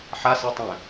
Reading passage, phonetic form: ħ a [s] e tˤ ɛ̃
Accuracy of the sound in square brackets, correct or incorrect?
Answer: correct